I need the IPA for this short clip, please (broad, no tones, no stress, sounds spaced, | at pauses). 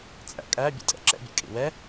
t͡sʼ æ̰ kʼ æ bʲ ə̰ tʼ ɛ̰ ǁ ɛ̰ bʲ ə̰ kʼ ḭ w ɛ